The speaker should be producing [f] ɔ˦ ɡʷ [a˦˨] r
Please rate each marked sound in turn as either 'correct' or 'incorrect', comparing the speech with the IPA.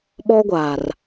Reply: incorrect, incorrect

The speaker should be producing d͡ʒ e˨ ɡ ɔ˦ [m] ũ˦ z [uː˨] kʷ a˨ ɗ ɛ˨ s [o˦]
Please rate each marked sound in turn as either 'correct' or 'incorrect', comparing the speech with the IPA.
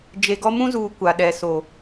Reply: correct, correct, incorrect

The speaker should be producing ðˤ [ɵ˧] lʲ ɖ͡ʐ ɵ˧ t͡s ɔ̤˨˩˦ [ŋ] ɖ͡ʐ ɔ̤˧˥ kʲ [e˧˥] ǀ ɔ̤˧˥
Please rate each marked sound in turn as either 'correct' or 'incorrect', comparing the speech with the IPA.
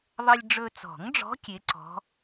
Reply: incorrect, correct, correct

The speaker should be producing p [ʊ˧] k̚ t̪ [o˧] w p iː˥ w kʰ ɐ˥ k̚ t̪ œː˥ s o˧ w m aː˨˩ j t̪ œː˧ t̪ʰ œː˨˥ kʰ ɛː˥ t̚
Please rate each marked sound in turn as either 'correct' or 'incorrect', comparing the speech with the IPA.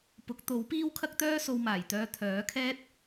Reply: incorrect, incorrect

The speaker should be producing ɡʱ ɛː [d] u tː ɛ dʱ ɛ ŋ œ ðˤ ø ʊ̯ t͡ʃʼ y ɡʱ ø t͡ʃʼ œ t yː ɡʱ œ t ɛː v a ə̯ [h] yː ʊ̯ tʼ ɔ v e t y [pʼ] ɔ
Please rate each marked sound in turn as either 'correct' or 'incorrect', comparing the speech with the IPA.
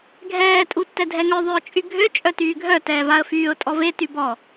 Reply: incorrect, incorrect, incorrect

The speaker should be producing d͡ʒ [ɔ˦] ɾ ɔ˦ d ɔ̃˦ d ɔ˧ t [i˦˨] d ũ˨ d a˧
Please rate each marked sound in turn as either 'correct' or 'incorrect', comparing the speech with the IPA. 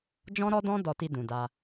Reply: incorrect, incorrect

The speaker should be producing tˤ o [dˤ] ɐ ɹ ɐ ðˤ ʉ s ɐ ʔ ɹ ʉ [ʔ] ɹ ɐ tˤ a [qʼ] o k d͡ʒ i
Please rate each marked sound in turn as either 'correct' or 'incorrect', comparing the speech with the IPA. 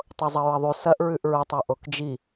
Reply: incorrect, correct, incorrect

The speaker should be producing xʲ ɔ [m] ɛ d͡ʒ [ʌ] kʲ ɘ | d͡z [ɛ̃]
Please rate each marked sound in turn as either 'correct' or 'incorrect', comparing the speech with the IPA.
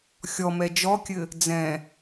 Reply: correct, incorrect, correct

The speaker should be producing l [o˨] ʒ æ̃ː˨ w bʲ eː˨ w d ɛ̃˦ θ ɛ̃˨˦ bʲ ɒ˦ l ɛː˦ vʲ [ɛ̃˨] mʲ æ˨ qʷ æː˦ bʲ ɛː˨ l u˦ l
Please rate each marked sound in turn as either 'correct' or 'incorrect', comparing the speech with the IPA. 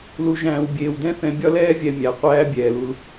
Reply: incorrect, incorrect

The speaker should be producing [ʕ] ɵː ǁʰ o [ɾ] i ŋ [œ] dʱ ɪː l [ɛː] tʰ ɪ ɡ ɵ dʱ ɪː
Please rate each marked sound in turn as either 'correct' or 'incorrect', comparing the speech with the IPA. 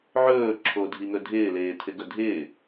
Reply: correct, incorrect, incorrect, incorrect

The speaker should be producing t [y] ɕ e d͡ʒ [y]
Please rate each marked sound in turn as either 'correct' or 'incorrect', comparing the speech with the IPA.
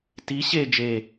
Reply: incorrect, incorrect

